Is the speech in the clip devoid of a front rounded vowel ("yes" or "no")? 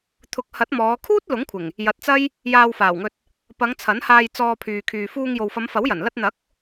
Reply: no